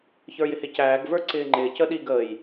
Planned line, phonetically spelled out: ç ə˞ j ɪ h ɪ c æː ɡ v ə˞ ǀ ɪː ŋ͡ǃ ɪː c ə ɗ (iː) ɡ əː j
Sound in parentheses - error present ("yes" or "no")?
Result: no